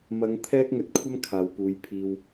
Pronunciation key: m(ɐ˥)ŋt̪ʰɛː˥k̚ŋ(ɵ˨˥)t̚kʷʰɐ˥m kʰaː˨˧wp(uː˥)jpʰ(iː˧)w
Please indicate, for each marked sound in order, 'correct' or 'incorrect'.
incorrect, correct, incorrect, correct

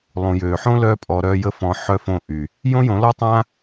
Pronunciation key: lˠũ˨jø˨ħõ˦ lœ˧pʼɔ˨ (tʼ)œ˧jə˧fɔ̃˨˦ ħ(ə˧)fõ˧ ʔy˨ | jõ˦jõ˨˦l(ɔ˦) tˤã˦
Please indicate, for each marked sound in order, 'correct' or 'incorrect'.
incorrect, incorrect, correct

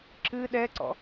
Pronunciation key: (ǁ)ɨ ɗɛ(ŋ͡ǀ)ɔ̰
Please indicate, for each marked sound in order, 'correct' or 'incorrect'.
correct, incorrect

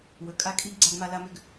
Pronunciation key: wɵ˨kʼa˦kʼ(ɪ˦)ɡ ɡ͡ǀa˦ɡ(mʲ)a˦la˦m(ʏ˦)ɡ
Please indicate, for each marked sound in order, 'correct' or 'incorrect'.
incorrect, incorrect, correct

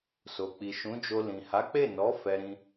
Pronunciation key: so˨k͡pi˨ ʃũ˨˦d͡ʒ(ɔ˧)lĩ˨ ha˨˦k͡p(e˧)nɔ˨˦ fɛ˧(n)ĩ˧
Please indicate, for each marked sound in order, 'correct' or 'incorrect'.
incorrect, incorrect, incorrect

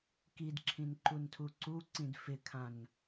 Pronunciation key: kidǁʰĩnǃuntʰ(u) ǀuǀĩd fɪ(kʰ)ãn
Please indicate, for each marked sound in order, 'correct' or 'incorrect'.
correct, correct

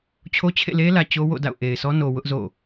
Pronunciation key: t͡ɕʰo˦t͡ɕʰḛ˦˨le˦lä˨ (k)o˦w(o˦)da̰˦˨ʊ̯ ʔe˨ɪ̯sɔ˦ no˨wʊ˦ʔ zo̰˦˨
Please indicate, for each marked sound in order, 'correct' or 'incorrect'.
incorrect, incorrect

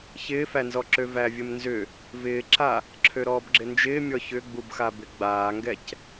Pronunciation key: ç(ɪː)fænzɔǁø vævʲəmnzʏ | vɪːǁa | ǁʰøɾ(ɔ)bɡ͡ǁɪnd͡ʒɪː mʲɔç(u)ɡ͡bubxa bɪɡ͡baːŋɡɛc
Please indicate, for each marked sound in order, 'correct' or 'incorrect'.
correct, incorrect, incorrect

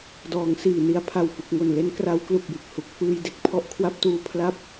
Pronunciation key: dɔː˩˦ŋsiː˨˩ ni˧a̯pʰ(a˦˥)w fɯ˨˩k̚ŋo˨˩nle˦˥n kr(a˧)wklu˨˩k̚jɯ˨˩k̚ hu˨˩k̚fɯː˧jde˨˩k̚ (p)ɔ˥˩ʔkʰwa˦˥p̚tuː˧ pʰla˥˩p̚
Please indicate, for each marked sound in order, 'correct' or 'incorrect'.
incorrect, incorrect, incorrect

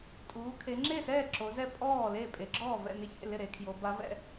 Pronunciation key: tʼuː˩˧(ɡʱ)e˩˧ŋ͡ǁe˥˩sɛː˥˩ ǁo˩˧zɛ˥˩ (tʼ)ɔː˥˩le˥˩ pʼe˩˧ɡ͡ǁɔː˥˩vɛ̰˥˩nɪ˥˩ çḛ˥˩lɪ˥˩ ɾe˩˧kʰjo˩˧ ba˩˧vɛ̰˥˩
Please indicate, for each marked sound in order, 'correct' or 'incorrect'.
incorrect, incorrect

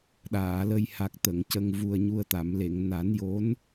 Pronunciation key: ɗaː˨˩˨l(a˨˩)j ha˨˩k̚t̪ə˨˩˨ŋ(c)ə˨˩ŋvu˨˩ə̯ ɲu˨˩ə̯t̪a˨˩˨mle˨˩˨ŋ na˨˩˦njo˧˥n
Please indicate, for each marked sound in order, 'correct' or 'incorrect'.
incorrect, correct

